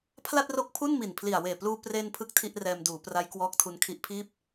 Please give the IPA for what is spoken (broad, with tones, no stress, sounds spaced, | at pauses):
pʰ l a˥˩ t̚ r o˦˥ k̚ pʰ u˥˩ n m i˨˩ n pʰ l i˨˩ a̯ w eː˨˩ p l uː˧ p r e˧ n pʰ ɯ˥˩ k̚ tʰ i˥˩ ʔ r ɛː˧ m d uː˩˦ p r a˦˥ j k w ɔː˦˥ k̚ tʰ u˧ n kʰ i˦˥ ʔ pʰ iː˥˩ p̚